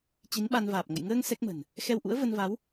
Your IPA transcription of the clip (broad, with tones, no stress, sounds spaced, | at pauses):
t͡ɕ i˨˦ n ɓ a˧ n v aː˨˩ p̚ ŋ ə̰˧˨ j ŋ əː˧ ŋ s ɛ˦˥ k̚ m ə̤˨˩ n | x ɛ˧ w ʔ ṵ˧˥ ə̯ v ə˧ n v a˨˦ w